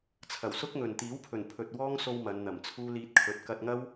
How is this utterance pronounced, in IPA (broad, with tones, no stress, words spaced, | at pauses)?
t͡sʰɐ˨˩wsʊ˥k̚ŋɵ˨n t̪iː˨˥wpʰɵ˨˩npʰɵ˨t̚ wɔː˥ŋso˧w mɐ˨˧nn̪ɐ˨˩mt͡sʰuː˥ liː˧t̚kʰɵ˨˥t̚ kɐ˧t̚ŋɐ˥w